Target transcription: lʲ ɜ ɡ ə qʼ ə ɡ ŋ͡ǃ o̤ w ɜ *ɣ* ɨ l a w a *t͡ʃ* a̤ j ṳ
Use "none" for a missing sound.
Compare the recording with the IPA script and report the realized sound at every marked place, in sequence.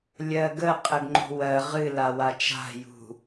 ʁ, t͡ʃ

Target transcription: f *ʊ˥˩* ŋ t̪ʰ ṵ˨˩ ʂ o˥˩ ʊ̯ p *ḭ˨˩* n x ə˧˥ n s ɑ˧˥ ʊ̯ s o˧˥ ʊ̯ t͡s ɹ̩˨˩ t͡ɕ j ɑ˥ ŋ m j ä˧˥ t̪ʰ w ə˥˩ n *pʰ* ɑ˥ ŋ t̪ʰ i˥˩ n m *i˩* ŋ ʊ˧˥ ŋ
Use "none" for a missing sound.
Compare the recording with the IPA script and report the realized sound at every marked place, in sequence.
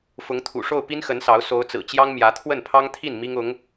ʊ˧˥, i˥, pʰ, i˥

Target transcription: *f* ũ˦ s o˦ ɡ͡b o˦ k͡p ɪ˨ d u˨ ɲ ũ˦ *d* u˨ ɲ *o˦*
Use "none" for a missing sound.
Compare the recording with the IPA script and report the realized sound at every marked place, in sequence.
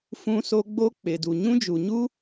f, d͡ʒ, u˦

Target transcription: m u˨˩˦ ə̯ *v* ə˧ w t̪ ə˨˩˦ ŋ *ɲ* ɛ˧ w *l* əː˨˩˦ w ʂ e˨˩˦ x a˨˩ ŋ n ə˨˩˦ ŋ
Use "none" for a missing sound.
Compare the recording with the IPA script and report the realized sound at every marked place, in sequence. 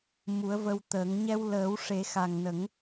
v, ɲ, l

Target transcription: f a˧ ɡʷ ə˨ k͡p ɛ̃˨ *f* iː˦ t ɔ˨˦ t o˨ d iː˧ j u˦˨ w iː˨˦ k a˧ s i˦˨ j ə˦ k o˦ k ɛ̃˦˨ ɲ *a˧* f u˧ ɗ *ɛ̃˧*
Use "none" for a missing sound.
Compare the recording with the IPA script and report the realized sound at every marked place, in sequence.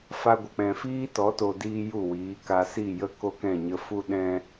f, ə˧, ɛ̃˧

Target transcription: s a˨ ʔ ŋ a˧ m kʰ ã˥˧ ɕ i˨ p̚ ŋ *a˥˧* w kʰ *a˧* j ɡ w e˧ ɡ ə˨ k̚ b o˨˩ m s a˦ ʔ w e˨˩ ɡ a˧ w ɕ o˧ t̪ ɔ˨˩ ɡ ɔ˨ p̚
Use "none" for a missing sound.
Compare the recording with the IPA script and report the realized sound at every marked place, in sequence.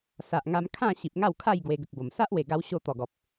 a˥˧, a˥˧

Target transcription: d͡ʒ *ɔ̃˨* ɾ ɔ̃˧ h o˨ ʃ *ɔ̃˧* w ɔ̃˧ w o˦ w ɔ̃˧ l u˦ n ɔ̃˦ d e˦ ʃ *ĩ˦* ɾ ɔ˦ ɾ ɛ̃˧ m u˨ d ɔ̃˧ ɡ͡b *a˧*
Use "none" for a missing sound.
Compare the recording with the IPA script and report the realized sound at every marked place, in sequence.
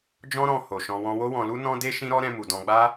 ɔ̃˦, ɔ̃˧, ĩ˦, a˦

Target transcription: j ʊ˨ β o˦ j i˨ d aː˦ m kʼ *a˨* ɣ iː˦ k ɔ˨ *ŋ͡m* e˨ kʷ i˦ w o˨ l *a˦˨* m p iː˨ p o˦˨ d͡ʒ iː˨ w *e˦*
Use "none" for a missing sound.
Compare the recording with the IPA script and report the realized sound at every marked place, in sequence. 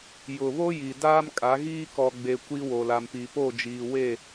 a˨˦, ɡ͡b, a˨, e˦˨

